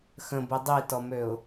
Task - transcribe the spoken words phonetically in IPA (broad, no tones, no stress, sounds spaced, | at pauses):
x ə̃ b i dˤ i t ɔ m ø ʊ̯